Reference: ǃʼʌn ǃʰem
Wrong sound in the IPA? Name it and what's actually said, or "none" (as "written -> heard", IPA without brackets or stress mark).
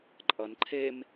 none